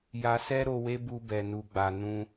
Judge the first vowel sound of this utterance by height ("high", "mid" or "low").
low